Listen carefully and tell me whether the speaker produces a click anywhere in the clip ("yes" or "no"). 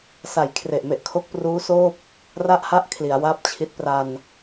no